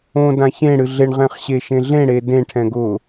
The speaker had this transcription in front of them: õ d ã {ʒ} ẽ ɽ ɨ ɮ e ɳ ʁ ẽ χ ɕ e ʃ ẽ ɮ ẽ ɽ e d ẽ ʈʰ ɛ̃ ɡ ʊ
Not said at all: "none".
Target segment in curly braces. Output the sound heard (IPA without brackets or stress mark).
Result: ç